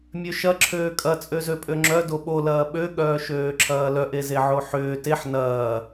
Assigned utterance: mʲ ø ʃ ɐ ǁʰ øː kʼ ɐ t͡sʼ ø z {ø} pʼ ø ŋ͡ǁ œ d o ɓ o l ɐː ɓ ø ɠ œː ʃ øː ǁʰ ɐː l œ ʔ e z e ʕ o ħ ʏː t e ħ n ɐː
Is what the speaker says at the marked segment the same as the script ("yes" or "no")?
yes